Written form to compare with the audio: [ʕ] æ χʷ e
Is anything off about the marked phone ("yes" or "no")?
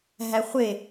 yes